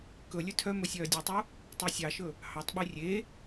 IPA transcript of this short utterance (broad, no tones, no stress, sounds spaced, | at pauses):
k ɵ lʲ ɵ tʰ œ m ɵ sʲ œː dʲ u tˤ u | tˤ e sʲ ɑ ʃ ɵ | h ɑ tˤ ɓ y rʲ e